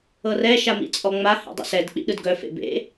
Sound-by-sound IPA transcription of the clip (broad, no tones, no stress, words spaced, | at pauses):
ɤrɛ ʃamḭt͡sʼɔŋ͡ma hḛdˤə̰sɛd k͡pḭɗɯdɡœfḛ bḛ